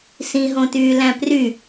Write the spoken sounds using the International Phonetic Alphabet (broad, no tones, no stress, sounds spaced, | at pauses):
s ĩ ɦ õ t yː l æ̃ p r y